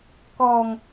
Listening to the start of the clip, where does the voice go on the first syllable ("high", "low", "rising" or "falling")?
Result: low